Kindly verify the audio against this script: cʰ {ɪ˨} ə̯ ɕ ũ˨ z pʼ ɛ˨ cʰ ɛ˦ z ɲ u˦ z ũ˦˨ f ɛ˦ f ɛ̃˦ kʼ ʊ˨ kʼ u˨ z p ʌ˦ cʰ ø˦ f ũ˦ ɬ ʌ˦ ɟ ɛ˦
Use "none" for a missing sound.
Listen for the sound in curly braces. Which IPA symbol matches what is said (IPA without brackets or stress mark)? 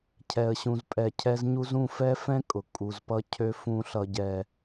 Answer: ɛ˨